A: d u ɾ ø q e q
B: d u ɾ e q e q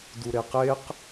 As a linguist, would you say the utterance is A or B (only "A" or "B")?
B